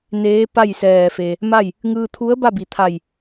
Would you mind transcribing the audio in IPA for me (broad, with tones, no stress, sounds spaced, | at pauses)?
n eː˧˥ p a˥˨ j s ɛː˧˩ f e˩ | m a˥˨ j | ŋ ɯː˧ t̪ʰ u˧˥ ə̯ b a˥˨ b i˩˧ t̪ʰ a˧˩ j